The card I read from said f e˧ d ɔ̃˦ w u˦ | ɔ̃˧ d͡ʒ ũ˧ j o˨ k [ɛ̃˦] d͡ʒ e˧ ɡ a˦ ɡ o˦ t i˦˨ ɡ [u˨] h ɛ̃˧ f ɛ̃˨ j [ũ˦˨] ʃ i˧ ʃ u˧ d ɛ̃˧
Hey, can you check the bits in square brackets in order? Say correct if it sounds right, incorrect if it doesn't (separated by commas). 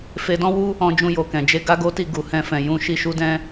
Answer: incorrect, correct, incorrect